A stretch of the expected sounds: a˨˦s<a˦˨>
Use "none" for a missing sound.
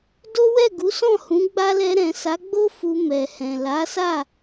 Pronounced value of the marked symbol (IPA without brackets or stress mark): a˦˨